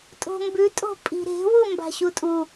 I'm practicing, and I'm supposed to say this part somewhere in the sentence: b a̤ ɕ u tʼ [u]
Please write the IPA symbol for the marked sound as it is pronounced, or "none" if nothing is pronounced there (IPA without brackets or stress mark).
u